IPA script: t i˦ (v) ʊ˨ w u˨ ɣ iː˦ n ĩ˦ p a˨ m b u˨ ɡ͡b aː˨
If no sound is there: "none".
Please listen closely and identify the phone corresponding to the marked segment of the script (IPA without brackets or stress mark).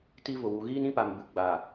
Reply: v